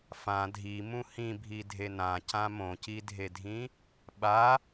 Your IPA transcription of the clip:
f ã dʱ i m ũ h ĩ bʱ i dʱ e n ã c ã m õ c i dʱ e dʱ ĩ | ɓ a

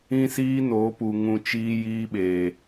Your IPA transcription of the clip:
ĩ˦ s iː˦ n oː˨˦ p u˨ ŋ ũ˧ t͡ʃ iː˦ j iː˦ ɓ eː˨

